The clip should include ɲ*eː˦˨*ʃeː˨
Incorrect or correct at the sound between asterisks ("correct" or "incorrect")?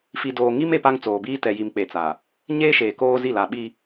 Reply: incorrect